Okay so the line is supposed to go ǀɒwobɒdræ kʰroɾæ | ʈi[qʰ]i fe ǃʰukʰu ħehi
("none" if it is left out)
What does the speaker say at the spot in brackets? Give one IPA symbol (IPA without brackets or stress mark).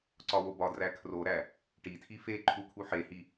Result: tʰ